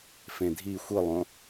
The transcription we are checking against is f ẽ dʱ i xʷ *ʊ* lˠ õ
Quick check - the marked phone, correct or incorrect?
incorrect